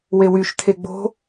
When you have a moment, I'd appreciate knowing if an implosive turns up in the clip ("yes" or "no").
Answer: no